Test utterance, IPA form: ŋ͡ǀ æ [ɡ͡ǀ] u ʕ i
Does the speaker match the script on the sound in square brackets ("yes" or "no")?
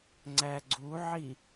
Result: yes